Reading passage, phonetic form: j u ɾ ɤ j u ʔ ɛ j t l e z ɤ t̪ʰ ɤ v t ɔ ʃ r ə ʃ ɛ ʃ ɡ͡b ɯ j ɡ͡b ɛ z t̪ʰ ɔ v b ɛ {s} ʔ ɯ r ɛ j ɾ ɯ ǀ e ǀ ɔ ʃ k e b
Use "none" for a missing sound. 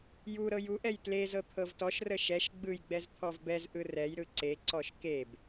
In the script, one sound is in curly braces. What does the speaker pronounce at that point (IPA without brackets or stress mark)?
z